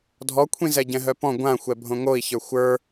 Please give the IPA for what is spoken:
dʱɔkʷʰĩ zɛɟɛ̃ɦœpɔ̃ ɡʷãxʷɛ bʱõŋoi̯çə˞ xʷə˞

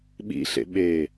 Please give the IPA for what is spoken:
ɓḭɬḛ ɓeː

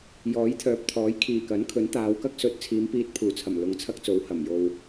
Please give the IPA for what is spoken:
jɔː˨˥jt̪ʰœː˨p̚t̪ʰɔː˨˥j kʰiː˨˩kɐ˨˥nkʰɵ˨˥n t̪aː˨˧wkɐ˥k̚ sɵ˨t̚t͡sʰiː˨˧m piː˧t̚pʰuː˨˩t͡sʰɐ˨˩m lʊ˨ŋt͡sʰɐ˥k̚t͡so˨˥w hɐ˨˩m jo˨w

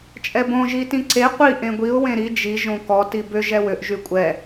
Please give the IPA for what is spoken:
t͡ʃʼɛbõ ʒitĩǀe qʷi ʔẽɡʷiʊ̯ wẽɾi d͡ʒi ʒõkɔ tibʏ ʒɛwʏʔ ʒykʷʼɛ

